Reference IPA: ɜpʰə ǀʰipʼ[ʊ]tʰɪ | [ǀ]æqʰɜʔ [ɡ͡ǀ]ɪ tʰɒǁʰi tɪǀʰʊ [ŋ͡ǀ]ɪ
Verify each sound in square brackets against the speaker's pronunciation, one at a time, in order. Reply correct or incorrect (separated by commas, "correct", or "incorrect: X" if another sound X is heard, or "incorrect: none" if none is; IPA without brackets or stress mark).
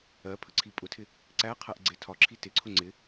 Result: correct, correct, correct, correct